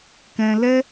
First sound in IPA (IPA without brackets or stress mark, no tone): k